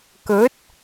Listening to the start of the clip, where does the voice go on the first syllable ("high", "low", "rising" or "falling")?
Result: rising